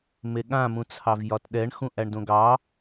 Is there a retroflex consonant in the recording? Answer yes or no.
yes